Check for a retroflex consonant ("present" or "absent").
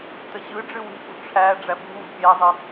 present